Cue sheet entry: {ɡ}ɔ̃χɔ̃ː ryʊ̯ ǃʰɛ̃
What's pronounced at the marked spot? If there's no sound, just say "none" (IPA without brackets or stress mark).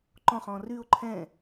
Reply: ǃ